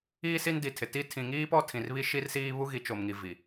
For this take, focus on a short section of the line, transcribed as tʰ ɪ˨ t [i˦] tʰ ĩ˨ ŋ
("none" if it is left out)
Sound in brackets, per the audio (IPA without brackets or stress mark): i˦